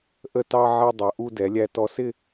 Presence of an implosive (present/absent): absent